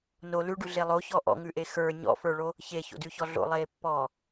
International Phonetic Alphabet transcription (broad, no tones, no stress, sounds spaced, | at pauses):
n o l ʉ ɖ ʉ ɮ e lˠ o ç ɔ ʔ ɔ̰ ŋ ʉ ʔ e x ə˞ ɲ ɔ̰ f ə˞ ɭ o | ç e ç o̰ d ʉ ç ɔ ɮ o̰ lˠ eː pː ɔː